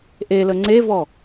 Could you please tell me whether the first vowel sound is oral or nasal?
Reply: oral